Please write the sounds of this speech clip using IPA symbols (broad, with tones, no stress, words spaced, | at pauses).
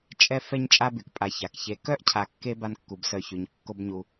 t͡ʃʼɛ˦ fɛ˦ɲt͡ʃʼa˦by˩kpʼa˨ ça˩kçe˨kœ˥ʔ cʰa˨kːe˦ ba˦nkːu˩bsœ˨çy˩ɲ kːo˦bɲu˨